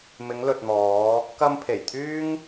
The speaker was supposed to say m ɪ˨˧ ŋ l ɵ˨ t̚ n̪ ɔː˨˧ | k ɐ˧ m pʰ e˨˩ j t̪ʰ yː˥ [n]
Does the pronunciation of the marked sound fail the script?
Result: yes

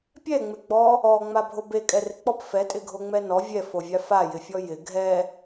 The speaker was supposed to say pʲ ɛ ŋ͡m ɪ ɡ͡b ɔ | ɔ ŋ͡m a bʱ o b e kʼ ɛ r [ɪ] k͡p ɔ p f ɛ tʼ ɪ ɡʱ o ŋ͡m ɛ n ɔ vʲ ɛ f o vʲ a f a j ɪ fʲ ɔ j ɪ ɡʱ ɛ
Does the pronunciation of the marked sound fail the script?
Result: no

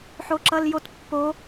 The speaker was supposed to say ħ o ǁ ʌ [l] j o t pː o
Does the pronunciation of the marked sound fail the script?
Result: no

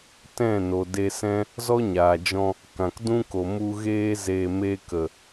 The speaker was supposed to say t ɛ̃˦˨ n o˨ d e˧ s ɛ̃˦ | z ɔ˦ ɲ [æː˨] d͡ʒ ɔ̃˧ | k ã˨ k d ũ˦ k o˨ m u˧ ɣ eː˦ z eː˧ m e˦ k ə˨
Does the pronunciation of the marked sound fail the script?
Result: yes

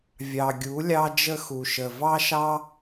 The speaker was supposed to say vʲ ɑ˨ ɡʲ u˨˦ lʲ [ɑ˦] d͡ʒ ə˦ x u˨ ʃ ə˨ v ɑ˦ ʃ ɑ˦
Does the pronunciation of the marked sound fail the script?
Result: no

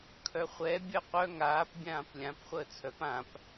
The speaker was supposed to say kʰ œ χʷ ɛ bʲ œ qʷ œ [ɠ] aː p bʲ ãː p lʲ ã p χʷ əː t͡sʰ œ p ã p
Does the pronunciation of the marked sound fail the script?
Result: yes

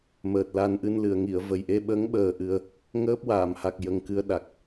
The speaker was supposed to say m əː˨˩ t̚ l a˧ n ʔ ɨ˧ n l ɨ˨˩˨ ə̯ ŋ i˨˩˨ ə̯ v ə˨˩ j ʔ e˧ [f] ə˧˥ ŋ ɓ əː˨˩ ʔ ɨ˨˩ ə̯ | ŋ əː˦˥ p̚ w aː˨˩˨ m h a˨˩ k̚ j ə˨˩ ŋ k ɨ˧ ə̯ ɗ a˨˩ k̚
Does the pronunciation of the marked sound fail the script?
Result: yes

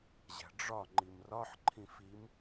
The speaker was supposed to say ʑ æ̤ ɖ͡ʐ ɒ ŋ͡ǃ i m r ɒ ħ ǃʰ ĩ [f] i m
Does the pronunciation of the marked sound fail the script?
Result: no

